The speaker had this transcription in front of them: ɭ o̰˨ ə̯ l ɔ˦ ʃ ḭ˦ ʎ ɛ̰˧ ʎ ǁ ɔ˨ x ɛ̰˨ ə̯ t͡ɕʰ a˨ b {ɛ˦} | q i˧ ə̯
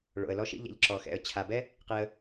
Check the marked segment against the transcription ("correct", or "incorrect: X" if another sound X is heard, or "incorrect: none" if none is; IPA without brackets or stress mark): correct